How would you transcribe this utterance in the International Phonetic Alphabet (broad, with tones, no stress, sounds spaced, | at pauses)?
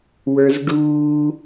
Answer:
w ə˞˦ z ɖ uː˦